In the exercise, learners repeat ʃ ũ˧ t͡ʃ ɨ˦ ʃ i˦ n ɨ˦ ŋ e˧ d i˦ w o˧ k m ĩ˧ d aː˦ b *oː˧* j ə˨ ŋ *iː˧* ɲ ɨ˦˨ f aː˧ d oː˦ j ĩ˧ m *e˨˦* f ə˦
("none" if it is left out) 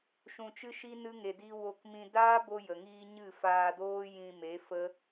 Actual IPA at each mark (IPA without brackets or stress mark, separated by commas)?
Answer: o˧, iː˧, e˨˦